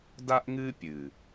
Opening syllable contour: high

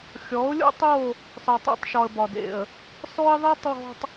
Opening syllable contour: rising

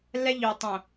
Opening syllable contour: high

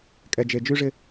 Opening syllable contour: low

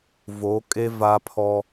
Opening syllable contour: rising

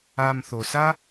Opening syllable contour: low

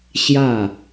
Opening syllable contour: falling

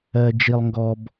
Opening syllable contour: low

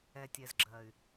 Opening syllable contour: low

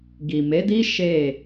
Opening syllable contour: low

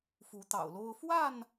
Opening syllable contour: rising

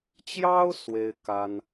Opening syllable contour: high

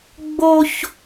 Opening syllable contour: high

